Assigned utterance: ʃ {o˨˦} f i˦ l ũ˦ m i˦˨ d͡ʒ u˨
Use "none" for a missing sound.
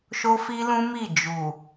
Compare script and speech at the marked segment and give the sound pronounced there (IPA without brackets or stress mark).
o˦